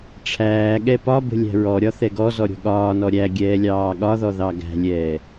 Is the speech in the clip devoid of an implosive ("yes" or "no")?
no